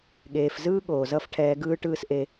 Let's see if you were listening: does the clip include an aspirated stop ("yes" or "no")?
yes